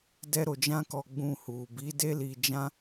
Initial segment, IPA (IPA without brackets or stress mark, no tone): d